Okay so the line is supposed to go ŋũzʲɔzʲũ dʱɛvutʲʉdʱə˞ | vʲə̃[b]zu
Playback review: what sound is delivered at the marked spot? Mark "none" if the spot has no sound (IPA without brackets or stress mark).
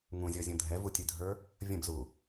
b